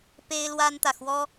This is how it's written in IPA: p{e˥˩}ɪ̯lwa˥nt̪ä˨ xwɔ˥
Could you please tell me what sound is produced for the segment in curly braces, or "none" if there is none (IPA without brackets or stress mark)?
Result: e˥